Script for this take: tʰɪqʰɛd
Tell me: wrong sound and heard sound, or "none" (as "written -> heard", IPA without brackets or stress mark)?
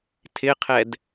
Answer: none